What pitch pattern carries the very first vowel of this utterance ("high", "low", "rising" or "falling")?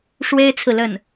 high